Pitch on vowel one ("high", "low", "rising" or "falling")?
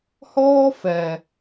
high